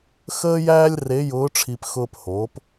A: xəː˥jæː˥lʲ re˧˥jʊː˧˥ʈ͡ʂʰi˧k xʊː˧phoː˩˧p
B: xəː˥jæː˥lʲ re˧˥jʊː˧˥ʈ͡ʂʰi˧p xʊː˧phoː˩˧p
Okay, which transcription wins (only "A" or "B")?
B